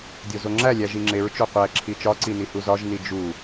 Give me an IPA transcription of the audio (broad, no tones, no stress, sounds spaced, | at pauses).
dʲ o z o ŋ͡ǁ æ lʲ æ ʒ i ŋ͡ǁ e ɹ t͡ʃ o qʷ æ ǁʰ i t͡ʃ ɒ ǀ i n i h u z ɒ ʒ n i d͡ʒ u